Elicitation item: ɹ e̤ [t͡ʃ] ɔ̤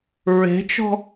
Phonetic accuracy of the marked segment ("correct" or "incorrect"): correct